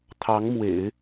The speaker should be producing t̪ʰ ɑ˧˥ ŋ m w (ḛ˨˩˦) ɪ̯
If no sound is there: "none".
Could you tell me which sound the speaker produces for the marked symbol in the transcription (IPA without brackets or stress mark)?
ḛ˨˩˦